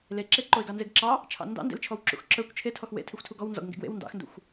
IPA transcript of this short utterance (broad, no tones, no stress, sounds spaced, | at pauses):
l e ǁ e ǃ o ɪ̯ ɡ ɑ n z e ɡ ǁ ɑ | t͡ʃʰ ɑ̰ n d ɑ̰ n d ḛ l t͡ʃʰ ɔ w ǁ ṵ x ǁ ə˞ kʷ t͡ʃʰ e tʰ ɔ x w ḛ tʰ i xʷ tʰ u ɡ ɔ w n z ɔ̰ ɡ ŋ ɡ ḛ ɡ w ḛ w n d ɑ̰ x n d ṵ xʷ